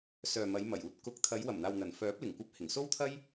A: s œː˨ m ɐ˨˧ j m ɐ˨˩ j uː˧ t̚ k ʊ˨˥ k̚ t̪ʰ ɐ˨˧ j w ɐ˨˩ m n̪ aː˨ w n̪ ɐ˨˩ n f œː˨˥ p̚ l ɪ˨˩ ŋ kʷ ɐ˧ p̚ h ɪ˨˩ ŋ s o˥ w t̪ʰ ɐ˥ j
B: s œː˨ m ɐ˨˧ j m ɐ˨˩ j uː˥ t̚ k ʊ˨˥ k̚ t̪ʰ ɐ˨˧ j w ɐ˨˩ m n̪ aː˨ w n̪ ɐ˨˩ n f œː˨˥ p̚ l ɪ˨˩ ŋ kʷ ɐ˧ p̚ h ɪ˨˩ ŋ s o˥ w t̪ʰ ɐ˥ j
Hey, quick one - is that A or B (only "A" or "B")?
A